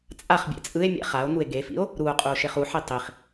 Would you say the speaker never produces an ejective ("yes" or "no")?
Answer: no